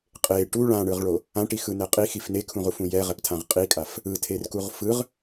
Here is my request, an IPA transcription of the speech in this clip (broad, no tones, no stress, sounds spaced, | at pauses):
qʼ e ʈ u ɭ ã ɳ ɯ ʁ ɭ o | ã ʈ i x ɯ n ɛ qʼ i x i f n e kʰ ũ ʁ u f ũ j ɛ ʁ ɛ p tʰ ã ʁ qʼ i kʼ a f | ɯ tʰ e r k u ʁ f ɯ ʁ